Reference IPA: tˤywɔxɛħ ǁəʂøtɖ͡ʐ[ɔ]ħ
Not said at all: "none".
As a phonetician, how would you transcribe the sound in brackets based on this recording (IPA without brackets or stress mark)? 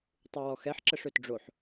o